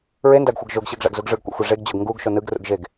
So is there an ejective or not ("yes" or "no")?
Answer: no